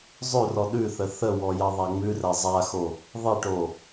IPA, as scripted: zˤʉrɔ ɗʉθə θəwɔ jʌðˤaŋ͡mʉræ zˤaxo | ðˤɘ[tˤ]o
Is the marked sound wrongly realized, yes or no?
yes